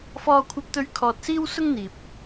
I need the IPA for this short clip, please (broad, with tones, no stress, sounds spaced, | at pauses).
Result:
f ɔː˧ kʷʰ ɐ˧ p̚ t̪ ɵ˧ ɥ kʰ ɔː˧ t̚ s iː˥ w s ʊ˥ ŋ n̪ iː˨ p̚